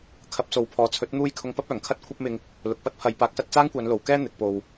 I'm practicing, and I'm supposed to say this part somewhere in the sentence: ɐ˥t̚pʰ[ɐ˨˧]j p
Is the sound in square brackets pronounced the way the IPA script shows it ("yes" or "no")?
yes